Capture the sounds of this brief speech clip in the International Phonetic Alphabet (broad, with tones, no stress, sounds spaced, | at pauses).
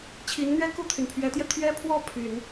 t͡ɕʰ i˧˥ n n̪ ɥ ɛ˥ k u˥˩ t̪ʰ y˩ n pʰ ɥ ɛ˧˥ t̪ j ɛ˧ t̪ʰ ɥ ɛ˥ pʰ w ɔ˥˩ pʰ y˨˩˦ n